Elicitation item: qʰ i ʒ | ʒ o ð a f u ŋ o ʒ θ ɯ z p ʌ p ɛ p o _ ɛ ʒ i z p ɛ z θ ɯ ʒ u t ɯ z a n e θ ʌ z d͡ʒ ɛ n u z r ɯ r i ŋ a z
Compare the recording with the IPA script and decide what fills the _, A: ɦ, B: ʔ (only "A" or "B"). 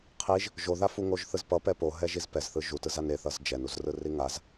A